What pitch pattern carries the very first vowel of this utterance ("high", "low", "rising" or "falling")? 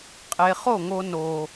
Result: low